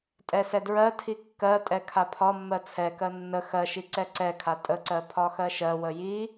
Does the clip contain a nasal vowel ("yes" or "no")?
no